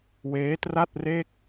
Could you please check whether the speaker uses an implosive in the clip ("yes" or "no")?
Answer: no